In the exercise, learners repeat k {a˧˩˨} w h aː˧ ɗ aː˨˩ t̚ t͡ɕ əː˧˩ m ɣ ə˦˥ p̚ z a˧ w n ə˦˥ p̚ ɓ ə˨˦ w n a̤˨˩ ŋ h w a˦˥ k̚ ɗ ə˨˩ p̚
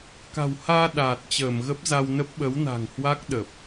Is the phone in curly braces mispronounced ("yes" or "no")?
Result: yes